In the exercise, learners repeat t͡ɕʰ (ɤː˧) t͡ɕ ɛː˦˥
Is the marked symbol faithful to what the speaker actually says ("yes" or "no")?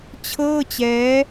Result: no